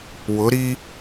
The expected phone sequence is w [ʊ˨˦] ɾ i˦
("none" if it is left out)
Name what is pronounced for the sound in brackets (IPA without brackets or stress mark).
ʊ˨˦